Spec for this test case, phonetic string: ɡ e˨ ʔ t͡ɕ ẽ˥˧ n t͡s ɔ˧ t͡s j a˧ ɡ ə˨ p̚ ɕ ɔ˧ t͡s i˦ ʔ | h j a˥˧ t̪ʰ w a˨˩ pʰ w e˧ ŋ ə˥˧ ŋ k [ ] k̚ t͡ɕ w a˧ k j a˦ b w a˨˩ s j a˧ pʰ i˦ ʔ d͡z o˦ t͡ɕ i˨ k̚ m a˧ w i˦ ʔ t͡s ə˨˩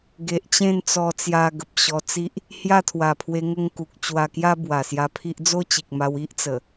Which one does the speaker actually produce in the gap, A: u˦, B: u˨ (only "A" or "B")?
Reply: B